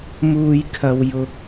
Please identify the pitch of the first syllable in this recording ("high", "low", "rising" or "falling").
low